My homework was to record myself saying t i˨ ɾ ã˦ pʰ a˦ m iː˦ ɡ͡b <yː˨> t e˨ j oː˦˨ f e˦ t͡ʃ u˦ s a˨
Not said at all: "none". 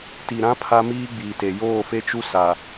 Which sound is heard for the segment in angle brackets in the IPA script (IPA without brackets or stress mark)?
iː˨